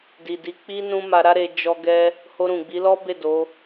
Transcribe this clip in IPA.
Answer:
d i˨ d i˨˦ k͡p i˦ n ũ˦ m a˧ ɾ a˦ ɾ e˧ d͡ʒ ɔ˧ ɡ ɛ˧ | h o˧ ɾ ũ˨ ɡ͡b i˨˦ l ɔ˦ b e˦˨ d o˨˦

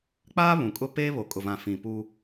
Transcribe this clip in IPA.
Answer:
k͡p aː˦ β ũ˨ kʼ ʊ˦ p eː˦ β o˨ kʼ ʊ˨ v ã˨ f ĩ˨ p u˦

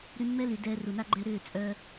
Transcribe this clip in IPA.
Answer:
ɾ y˧ mː ɛ˦ l y˨ d ɛː˧ r u˨ n a˦ ɡ͡ǃ ɛ˧ ɾ ʏː˦˨ t͡sʼ œ˧

